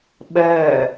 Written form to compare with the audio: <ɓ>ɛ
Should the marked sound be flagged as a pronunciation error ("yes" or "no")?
no